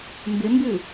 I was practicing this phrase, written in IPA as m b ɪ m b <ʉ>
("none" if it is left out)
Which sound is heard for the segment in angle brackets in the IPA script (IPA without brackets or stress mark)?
ʉ